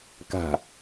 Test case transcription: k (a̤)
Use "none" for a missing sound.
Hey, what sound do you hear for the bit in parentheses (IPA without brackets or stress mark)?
a̤